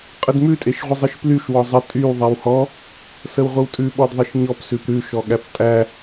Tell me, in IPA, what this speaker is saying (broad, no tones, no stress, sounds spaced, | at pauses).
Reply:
qʼ ə d m ʉ tʼ e ʃ ʁʷ ɪ zˤ i ʃ p l y ʃ w ɔ zˤ ə tʼ y w ðˤ ɛ w h ɔ | s ə w ʁʷ ə w tʼ ʉ ɓ ɔ d ðˤ i ʃ ɲ ɔ p s ʉ p ɾ ʉ ʃ ɔ ɠ æ p tʼ æ